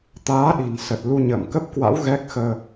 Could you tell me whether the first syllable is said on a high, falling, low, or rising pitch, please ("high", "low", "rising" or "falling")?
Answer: rising